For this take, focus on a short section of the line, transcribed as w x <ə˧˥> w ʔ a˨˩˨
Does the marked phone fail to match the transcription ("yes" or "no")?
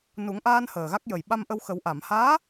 yes